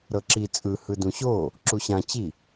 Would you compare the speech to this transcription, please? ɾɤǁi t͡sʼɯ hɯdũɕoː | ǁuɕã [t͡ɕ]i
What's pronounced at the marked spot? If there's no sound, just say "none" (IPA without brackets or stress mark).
t͡ɕ